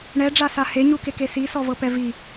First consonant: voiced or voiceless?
voiced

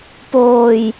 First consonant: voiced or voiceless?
voiceless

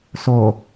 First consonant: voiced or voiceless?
voiceless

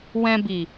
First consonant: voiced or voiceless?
voiced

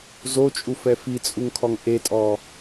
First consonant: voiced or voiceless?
voiced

